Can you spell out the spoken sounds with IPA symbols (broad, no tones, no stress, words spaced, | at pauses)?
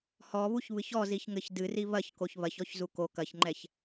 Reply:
hɔβuç βɨçɔziçŋɘç dɨri βɐç koçβɐçɔç zuko kɐçŋ͡ǃɛç